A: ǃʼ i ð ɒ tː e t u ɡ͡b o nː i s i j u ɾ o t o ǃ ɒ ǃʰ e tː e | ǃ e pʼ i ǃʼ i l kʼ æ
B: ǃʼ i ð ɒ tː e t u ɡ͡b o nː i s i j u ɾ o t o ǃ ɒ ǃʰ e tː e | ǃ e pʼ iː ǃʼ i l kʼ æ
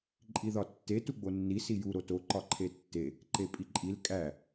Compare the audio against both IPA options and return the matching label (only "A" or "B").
A